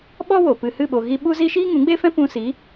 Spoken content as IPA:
ɓ ɔ˦ w o˨ p ɨ˨ h ɨ˦˨ ɓ o˨ ɣ i˧ ɓ u˦ z i˦ ʃ iː˦ ŋ ũ˨˦ ɡ͡b e˦ f ɛ̃˦ p ũ˧ s i˨˦

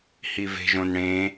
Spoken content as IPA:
h i v e̤ ʒ õ n ɽ ẽ

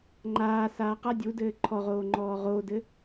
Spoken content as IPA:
ŋ͡ǃ aː s aː q a dʲ u d ɘː ǃʰ ɔ ʁ oː ŋ͡ǃ ɔː ʁ o d ɘ

